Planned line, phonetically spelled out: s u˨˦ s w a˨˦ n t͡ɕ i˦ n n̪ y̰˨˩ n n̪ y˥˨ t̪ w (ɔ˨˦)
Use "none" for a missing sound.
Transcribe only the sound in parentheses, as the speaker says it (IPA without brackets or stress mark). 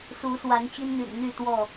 ɔ˥˨